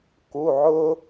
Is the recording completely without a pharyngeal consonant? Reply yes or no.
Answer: no